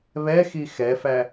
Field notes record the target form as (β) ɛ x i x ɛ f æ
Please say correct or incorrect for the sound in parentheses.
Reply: correct